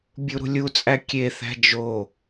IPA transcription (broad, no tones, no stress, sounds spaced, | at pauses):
bʲ u ɾ ṳ lʲ u t͡sʼ æ kʲ e θ æ̤ d͡ʒ o